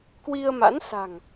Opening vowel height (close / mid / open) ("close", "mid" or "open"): close